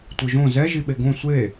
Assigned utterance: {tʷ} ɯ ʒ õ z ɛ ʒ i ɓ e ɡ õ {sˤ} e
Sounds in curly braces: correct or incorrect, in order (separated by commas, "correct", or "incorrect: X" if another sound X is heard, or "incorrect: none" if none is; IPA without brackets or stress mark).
correct, incorrect: sʷ